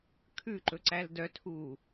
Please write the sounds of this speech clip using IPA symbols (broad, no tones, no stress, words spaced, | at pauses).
kʰʉǃɵǀæl dœtʰuː